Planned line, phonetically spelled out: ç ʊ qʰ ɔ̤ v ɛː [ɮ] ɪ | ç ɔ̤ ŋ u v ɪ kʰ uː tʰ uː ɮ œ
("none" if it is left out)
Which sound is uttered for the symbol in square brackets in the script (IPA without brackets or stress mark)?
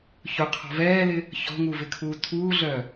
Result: l